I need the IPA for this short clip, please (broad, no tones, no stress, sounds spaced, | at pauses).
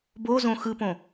b o z õ x ɯ p õ